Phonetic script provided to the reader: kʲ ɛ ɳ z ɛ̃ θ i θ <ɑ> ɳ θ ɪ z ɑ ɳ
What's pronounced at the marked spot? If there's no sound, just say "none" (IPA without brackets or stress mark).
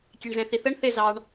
ə